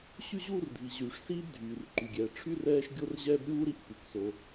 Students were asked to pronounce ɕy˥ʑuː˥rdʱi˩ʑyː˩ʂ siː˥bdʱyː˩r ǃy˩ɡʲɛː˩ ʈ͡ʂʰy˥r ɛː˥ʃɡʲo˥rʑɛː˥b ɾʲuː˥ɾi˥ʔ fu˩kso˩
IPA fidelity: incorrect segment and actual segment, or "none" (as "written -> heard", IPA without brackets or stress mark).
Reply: none